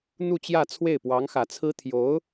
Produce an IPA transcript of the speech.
n̪ u˥˧ t͡ɕ j ä˥˧ t͡sʰ w e˥˩ ɪ̯ p w ɑ˧˥ ŋ x ä˨˩ t͡sʰ ɹ̩˥ t̪ʰ j o˧˥ ʊ̯

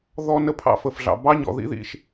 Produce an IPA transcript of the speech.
ð ɔ˦ n ə˦ pʰ ɑ̰˧ f ə˨ f ɮ ɑ̰˨ b ɑ˦ ɲ ɔ̰˨ ð ḭ˦ ð ḭ˧ ʃ

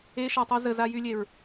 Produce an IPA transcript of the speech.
e ʃ a tˤ o z ə z a j y lʲ e ɹ

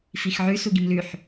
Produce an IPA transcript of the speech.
f i x ʕ ʉ s u ɡ i m l ʉ ħ

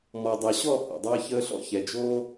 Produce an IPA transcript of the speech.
m ɔ˨ dˤ ʌ˨ ɕ ɔ˦˨ h ɔ̰˨ dˤ ʌː˦ ç əː˦ ɬ ɔ̰˦ ç ɛ˨ d͡ʒ oː˦

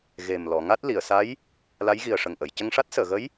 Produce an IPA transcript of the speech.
ɣ e˨˩ m l ɔ˨˩˨ ŋ a˦˥ t̚ l i˨˩˨ ə̯ s a˧˥ j | l a˧˥ j ɣ i˨˩ ə̯ ʂ ə˨˩ ŋ ʔ ə˨˩˨ j c ə˧ ŋ ʂ a˦˥ t̚ s əː˨˩˨ ɣ ə˧˥ j

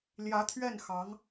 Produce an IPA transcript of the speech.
l j ä˧˥ t̪ʰ ɥ ɛ˥˩ n x ɑ˧˥ ŋ

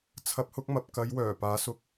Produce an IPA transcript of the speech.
t͡sʰ ɐ˨˥ p̚ h ʊ˨˥ k̚ m ɐ˨ p̚ k ɐ˨˧ j w œː˨˩ p aː˨˥ s ʊ˨ k̚

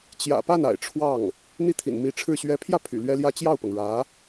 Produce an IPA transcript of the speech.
t͡ɕ j ä̰˨˩ p a˥˩ n a̰˨˩ ɪ̯ ʈ͡ʂʰ w ɑ˥˩ ŋ | n̪ i˥˩ t̪ʰ ḭ˨˩ n m i˧˥ ʈ͡ʂʰ ɻ̩˥˩ ɕ ɥ ɛ˧˥ pʰ j ä˥˩ pʰ y̰˨˩ l ɥ ɛ˥ l j ä˥ t͡ɕ j ɑ˥˩ ʊ̯ p ɤ˩ ŋ ɻ ä˧˥

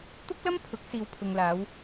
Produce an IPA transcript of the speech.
t̪ ʊ˥ k̚ l ɐ˥ m pʰ ʊ˨˥ k̚ s iː˨ w pʰ ʊ˨ ŋ l aː˨˧ w

